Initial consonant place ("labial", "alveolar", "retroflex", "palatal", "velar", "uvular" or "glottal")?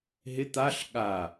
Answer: glottal